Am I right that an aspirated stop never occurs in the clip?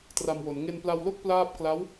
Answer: yes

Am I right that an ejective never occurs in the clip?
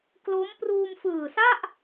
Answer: yes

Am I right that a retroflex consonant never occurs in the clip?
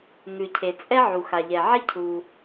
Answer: yes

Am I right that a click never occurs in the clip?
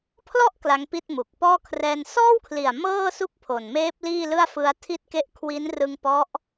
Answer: yes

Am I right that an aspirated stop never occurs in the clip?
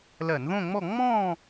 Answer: yes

